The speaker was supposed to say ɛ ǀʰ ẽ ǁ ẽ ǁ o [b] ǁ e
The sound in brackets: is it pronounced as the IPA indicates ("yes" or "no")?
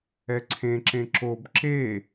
yes